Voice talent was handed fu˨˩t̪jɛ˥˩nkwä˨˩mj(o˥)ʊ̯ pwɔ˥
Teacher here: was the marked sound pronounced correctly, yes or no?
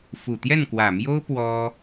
yes